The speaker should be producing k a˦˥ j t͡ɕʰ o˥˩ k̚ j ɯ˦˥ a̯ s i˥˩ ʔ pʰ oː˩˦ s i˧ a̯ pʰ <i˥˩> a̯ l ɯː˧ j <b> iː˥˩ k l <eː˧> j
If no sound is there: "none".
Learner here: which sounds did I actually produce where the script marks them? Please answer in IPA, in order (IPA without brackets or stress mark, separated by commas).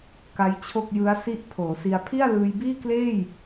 i˥˩, b, eː˥˩